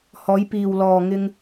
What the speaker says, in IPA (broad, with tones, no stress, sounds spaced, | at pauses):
h ɔː˨˧ j p iː˨ w l ɔː˨ ŋ ɪ˧ ŋ